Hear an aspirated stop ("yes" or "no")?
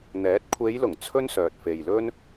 yes